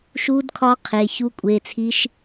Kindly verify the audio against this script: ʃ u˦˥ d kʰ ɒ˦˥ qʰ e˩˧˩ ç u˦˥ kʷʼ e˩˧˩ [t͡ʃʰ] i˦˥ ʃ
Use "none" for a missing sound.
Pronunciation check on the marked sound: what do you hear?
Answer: t͡sʰ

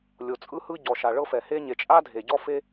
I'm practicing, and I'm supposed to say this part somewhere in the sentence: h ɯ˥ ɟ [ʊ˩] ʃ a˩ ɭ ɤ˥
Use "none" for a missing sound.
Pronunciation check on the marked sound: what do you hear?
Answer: ɔ˩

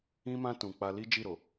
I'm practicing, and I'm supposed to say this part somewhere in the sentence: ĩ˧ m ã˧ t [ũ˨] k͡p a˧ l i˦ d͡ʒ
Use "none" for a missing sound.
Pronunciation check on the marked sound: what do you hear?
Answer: ũ˨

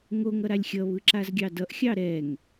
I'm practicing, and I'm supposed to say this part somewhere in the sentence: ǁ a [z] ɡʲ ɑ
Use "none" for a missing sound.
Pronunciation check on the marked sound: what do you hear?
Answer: z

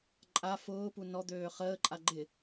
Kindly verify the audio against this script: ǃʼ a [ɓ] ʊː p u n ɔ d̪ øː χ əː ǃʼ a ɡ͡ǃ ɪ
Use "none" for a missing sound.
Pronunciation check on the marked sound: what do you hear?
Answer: f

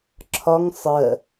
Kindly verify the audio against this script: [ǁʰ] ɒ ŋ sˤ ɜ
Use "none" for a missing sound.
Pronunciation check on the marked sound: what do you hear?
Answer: ǁʰ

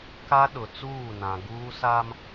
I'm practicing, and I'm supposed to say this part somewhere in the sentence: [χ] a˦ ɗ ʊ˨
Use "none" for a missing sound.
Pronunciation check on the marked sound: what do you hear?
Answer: k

